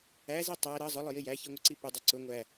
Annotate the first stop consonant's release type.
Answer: plain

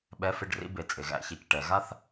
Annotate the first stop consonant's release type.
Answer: implosive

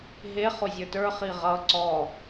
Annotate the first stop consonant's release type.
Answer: plain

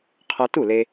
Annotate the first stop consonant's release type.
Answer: aspirated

